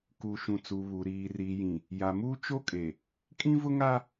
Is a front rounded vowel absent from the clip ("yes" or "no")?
yes